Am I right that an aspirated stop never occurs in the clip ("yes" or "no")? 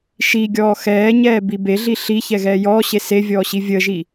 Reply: yes